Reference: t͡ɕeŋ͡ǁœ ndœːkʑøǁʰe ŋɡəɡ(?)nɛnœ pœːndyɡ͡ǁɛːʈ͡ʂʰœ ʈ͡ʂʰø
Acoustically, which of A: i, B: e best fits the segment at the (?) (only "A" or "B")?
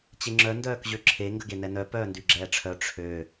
B